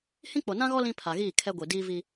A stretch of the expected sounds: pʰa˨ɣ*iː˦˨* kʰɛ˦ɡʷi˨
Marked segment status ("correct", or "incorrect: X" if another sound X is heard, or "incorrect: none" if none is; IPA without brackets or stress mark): correct